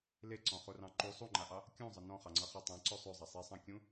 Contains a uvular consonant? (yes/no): yes